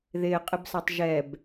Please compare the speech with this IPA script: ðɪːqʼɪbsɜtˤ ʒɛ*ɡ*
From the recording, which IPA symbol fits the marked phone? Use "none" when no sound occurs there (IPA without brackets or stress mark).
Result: b